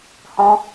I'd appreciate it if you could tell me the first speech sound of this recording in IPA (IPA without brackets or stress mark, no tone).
h